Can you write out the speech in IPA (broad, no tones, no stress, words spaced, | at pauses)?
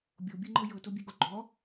bʲobʲɯŋ͡ǃɤ jɤtobʲeɡo ɡ͡ǃɔ